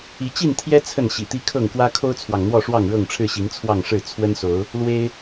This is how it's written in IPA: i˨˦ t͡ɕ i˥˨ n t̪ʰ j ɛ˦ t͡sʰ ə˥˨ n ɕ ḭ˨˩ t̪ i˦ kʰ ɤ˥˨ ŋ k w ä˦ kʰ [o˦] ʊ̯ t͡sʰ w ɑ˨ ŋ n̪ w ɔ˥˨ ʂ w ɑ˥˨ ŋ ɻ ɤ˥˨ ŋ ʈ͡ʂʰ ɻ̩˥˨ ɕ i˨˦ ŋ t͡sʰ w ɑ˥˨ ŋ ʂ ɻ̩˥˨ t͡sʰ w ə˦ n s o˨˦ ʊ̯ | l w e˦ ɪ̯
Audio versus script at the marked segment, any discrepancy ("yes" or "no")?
no